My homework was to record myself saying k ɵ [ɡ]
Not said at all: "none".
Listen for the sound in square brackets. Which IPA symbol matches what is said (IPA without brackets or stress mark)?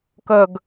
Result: ɡ